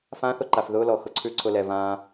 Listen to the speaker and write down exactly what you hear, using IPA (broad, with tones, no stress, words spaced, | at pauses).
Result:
fã˦θʊ˧ǃa˨f ðʊː˦lɔ˨ xʊ˧ǀʰʉ˦ǀʰʊ˧lɛ˨ vãː˧